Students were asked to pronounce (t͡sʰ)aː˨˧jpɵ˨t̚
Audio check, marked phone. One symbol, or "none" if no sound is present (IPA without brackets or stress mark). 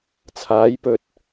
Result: t͡sʰ